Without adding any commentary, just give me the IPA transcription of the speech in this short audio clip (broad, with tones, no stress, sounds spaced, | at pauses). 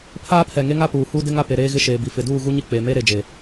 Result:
pʰ aː˦ pʰ ɛ˨ ŋ e˦ ŋ a˦ p uː˨ h u˦ d ɪ˦ ŋ a˦ p e˨ ɾ eː˦ ɣ ɪ˦ ʃ eː˨ b i˨ f ɪ˨ d uː˦˨ ɣ u˦ ɲ i˦ k͡p e˨ m e˦ ɾ e˨ d͡ʒ e˨